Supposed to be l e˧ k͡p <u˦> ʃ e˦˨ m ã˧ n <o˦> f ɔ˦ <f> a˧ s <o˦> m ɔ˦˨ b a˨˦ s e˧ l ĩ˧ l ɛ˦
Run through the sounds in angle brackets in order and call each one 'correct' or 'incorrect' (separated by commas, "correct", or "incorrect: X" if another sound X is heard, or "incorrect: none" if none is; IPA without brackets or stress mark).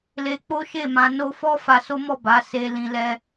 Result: incorrect: o˦, incorrect: o˧, correct, correct